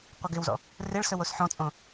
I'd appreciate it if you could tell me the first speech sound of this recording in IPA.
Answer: qʷ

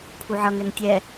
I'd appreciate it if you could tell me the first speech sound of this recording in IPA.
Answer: pʰ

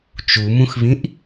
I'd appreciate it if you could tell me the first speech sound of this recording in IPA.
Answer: t͡ʃ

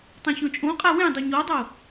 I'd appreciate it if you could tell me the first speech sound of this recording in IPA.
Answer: tˤ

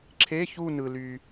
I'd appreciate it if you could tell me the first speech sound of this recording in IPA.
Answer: ǁʰ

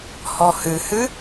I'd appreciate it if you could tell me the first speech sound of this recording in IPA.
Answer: h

